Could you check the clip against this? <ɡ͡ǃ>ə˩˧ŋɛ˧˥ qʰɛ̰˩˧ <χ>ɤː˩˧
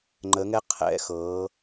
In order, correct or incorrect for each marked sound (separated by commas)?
incorrect, incorrect